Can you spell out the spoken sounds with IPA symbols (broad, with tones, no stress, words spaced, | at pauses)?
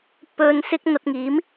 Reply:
pɵ˧n sɪ˥k̚ n̪ɐ˧t̚ŋiː˨˥m